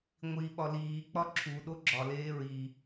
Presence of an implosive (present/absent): present